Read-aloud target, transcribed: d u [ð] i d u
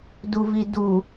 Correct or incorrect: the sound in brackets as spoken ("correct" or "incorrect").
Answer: incorrect